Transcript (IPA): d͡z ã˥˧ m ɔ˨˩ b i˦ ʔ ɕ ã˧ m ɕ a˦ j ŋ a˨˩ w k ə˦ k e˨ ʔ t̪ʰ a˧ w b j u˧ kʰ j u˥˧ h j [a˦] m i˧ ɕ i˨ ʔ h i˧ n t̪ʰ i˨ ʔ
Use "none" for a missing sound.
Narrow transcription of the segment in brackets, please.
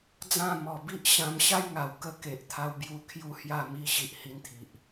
a˥˧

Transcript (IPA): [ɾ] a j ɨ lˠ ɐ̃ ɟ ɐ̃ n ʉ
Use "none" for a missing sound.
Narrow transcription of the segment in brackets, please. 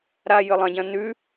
ɾ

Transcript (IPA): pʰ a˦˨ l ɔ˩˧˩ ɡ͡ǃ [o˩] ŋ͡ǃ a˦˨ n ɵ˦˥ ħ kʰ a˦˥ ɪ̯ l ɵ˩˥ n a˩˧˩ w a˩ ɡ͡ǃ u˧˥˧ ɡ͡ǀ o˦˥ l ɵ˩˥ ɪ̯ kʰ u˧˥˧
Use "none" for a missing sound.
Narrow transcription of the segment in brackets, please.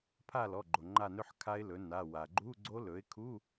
o˩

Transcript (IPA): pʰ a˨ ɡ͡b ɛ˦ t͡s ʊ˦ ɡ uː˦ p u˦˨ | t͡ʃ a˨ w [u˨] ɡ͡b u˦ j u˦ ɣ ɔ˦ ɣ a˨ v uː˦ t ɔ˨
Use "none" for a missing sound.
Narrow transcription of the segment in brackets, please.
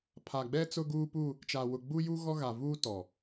ʊ˨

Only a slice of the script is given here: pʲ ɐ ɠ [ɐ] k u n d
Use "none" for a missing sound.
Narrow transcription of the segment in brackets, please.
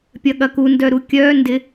ɐ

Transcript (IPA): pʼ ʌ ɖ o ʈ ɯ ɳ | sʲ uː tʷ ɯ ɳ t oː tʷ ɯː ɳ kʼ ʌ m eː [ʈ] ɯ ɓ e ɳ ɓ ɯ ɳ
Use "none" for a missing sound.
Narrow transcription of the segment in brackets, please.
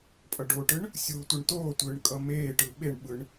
ʈ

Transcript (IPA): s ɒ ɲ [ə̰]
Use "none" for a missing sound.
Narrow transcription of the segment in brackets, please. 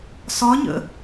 ə̰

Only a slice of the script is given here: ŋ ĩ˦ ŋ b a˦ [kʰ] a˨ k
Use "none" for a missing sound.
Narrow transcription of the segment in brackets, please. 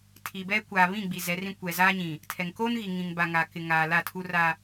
ŋ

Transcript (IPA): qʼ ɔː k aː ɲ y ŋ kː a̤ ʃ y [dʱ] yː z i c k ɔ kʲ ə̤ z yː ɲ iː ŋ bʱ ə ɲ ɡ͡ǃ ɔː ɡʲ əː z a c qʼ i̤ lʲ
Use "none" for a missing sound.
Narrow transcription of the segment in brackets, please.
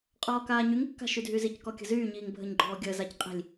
dʱ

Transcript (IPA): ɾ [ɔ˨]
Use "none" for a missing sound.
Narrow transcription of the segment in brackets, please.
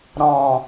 ɔ̃˨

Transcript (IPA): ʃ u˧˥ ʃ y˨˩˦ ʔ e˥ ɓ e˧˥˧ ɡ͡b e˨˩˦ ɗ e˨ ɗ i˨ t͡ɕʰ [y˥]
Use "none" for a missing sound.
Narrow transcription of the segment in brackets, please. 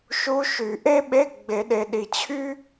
y˥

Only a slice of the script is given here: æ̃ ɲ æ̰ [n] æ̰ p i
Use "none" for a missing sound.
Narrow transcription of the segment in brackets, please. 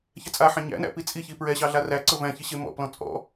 n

